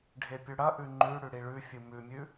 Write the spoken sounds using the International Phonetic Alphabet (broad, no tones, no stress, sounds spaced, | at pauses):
ɖʱ e pʲ ʉ ɽ ɐ ʔ ʉ ŋ͡ǃ ʉ ɽ ʉ ɽ i ɭ ʉ fʲ ɨ m ʉ mʲ ʉ